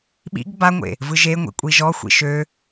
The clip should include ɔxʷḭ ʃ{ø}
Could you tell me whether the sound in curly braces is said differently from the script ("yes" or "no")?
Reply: no